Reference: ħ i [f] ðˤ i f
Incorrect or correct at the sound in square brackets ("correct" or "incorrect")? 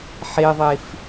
incorrect